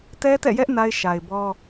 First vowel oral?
yes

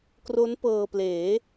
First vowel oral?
yes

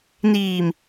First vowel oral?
yes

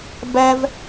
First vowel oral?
yes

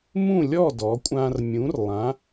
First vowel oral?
no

